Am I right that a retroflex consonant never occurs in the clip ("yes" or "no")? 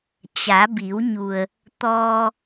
yes